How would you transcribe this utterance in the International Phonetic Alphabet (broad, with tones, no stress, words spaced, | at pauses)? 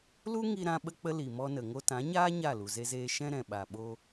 lu˦ŋi˧ ɾã˦ ɓə˦k͡pə˦ li˨mɔ˧nə˨ ŋo˧tã˨˦ ɲaː˦ ɲa˦˨lu˨ ze˧zeː˧ ʃɛ̃˧ɾɛ̃˨ɓa˨ ɓo˧